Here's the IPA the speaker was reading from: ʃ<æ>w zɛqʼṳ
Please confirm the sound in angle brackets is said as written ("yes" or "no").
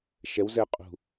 no